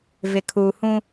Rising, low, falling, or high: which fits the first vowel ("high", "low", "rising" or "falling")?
low